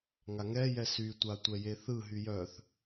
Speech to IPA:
ŋ a ŋ ɛ j ɛ s y tʷ a tʷ ɛ j e θ ɯ ɦ y j œ θ

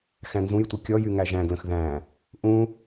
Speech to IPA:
x æ̃ n z ũ j tʷ ɯ kʲ ɔ j y ŋ æ ʒ æ̃ ɡ l ə̃ x ð æ̃ | ʔ ũ

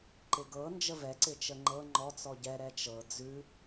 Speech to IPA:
ǃ ɪ ɡ ɤ n d͡ʒ ə v ɛ ǀ ɪ t͡ʃ ə ŋ͡ǃ ɤ ŋ͡ǃ ɔ t͡s ɔ ɟ ɛ ɾ ɛ t͡ʃ ɤ d͡z ʉ

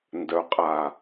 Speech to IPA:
n d œ˨˦ qʼ a˨

